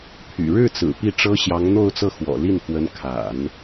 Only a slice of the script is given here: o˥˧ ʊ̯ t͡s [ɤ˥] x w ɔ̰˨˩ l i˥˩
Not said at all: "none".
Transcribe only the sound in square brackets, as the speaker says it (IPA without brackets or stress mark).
ɤ˥˩